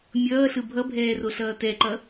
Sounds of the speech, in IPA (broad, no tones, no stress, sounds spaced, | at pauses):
mʲ ʌː ɬ ɯ bʱ ʌ bʱ ɛː r o ɬ ʌː t ɛ ǃ ʌ